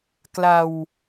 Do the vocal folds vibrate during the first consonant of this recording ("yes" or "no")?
no